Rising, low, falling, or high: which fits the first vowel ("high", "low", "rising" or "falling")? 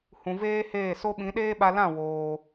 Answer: low